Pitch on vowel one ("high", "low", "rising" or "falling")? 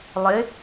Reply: rising